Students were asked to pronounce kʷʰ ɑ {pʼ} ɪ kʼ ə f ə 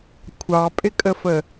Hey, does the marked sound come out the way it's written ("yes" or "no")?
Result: yes